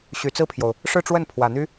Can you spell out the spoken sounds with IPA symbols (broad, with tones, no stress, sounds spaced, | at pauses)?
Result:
ɕ y˨˩ t͡s ɹ̩˥˩ pʰ j o˩ ʊ̯ | ʂ ɻ̩˥˧ ʈ͡ʂ w ə˥˩ n pʰ w ä˨˩ n̪ y˥